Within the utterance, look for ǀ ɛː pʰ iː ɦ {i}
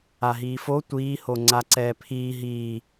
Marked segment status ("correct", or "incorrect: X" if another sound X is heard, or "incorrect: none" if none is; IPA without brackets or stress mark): incorrect: iː